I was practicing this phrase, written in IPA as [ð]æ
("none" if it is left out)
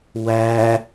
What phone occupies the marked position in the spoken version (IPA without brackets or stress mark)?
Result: w